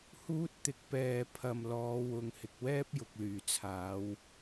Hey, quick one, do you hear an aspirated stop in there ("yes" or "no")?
yes